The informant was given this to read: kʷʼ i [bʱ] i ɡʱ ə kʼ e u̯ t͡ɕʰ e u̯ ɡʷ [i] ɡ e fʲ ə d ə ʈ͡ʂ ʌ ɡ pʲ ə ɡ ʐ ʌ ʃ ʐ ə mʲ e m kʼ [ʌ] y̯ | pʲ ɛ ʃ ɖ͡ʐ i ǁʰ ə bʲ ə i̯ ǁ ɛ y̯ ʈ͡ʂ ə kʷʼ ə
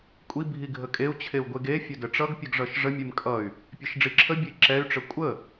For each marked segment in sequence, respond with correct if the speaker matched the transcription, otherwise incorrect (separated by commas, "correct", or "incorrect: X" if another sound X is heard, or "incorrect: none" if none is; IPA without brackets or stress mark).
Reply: correct, incorrect: e, correct